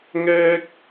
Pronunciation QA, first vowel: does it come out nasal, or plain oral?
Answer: oral